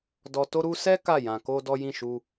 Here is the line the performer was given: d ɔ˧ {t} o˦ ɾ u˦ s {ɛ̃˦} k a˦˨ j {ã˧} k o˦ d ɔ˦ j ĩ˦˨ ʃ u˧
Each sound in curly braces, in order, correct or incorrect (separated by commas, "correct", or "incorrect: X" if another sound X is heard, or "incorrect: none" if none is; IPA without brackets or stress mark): correct, incorrect: ɛ˦, correct